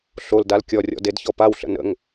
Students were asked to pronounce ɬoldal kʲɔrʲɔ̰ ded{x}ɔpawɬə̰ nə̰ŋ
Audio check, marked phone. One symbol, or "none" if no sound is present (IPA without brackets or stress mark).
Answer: ç